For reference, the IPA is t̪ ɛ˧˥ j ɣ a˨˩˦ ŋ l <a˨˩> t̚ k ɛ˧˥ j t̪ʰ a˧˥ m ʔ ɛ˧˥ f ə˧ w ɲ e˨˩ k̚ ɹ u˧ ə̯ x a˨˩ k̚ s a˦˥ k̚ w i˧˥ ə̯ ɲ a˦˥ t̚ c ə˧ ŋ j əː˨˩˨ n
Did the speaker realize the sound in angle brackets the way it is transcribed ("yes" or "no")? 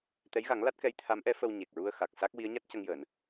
no